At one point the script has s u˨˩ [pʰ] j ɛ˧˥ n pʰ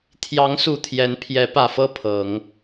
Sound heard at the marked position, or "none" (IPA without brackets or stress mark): t̪ʰ